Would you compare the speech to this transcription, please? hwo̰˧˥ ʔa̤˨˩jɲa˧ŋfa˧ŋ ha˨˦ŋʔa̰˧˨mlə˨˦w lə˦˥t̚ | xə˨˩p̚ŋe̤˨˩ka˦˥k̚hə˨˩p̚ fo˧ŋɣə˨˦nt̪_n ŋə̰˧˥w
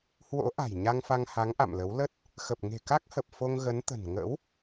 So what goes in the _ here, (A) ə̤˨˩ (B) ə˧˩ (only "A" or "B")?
A